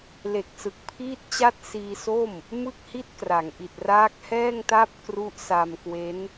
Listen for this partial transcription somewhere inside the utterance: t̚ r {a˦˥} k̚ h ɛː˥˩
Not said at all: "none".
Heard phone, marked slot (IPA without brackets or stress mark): aː˦˥